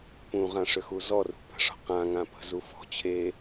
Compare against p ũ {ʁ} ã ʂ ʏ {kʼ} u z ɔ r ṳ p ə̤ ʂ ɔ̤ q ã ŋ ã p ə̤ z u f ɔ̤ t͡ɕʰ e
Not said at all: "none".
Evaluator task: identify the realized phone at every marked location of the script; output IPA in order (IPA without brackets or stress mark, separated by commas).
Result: ʁ, x